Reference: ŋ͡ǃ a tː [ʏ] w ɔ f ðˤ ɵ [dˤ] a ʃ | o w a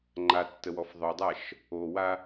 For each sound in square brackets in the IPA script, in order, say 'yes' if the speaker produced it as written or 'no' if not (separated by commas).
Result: no, yes